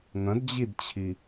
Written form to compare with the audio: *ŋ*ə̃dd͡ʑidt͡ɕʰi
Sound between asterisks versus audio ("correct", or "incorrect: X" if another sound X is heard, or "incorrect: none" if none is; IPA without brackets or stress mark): correct